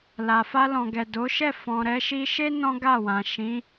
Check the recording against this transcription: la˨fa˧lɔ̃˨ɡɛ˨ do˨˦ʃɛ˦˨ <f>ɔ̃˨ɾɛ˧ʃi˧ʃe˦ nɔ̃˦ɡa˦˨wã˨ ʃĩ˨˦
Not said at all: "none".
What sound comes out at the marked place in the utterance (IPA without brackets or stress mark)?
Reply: f